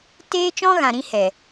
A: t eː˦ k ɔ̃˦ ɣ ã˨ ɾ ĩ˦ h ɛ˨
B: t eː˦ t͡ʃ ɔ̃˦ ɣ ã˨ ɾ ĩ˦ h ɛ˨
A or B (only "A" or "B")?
B